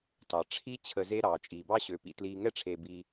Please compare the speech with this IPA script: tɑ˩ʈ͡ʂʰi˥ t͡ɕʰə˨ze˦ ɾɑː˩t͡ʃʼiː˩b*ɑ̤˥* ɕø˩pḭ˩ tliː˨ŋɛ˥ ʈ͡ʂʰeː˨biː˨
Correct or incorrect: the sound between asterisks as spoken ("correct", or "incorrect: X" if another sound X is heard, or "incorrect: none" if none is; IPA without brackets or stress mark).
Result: incorrect: ɑ˥